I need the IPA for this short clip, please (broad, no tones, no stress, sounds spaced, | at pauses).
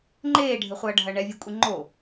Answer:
ŋ͡ǃ eː ɖʱ ɘ χʷ ɐː ɖʱ ɐ ɳ ɛ vʲ e kʷʼ i ŋ͡ǃ o